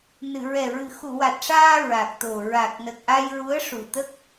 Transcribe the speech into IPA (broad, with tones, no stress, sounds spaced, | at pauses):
n ɨ˨˩˨ ɹ ɛ˨˩ ɹ ɨ˨˩˨ x u˨˩˨ w a˨˩ t̚ ʂ aː˧ ɹ a˨˩ k̚ t̪ o˨˩ ɹ a˨˩ k̚ n ə˨˩ k̚ ʔ a˧ j ɹ u˧˥ ə̯ ʂ u˨˩ t̪ ə˦˥ k̚